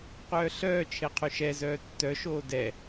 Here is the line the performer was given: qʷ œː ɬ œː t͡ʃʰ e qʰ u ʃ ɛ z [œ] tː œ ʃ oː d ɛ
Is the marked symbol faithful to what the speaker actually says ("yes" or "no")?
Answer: no